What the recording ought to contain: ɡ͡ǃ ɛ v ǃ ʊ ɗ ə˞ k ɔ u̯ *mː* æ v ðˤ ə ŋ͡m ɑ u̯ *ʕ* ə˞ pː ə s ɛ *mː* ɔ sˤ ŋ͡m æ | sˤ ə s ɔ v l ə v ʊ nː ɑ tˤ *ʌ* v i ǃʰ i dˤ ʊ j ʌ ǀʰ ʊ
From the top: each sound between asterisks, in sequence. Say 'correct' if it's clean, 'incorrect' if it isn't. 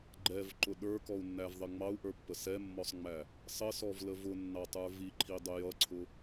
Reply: incorrect: nː, incorrect: ʔ, correct, incorrect: ə˞

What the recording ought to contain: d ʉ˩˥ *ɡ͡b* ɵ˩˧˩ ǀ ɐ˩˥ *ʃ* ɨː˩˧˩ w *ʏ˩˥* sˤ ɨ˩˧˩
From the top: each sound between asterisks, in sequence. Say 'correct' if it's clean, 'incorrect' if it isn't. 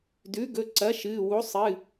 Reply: incorrect: ɡ, correct, incorrect: u˩˥

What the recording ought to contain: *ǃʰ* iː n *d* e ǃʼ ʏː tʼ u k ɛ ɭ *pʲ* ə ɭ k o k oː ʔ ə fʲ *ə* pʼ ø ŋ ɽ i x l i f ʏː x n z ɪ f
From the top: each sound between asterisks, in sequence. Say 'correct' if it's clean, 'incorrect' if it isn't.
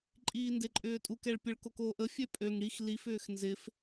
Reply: incorrect: ǃʼ, correct, correct, incorrect: ø

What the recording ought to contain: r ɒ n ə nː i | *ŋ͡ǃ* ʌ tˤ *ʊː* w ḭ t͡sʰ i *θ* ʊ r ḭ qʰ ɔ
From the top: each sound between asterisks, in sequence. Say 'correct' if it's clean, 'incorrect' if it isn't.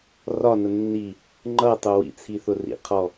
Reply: correct, incorrect: ʊ, correct

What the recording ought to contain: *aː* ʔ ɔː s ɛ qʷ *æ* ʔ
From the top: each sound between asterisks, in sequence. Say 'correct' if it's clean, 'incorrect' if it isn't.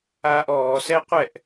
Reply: correct, incorrect: ɛ

